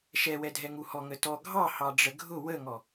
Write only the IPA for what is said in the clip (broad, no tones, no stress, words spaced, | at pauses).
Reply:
ʃɛwɛdʱɛŋu hɔŋətɔ ɡʱɑ hɑɖ͡ʐəɡʱʊ wəŋɔ